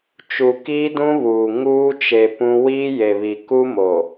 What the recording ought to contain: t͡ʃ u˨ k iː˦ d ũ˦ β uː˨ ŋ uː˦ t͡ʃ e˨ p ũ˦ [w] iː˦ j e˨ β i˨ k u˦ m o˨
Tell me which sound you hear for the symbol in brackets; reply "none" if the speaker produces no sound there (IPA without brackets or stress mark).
w